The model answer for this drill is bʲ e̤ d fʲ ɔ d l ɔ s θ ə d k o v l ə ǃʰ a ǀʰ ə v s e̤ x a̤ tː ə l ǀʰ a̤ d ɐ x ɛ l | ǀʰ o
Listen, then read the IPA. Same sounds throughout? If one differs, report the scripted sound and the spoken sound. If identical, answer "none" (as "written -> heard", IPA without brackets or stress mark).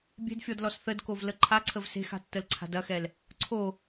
none